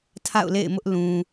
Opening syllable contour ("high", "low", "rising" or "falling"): falling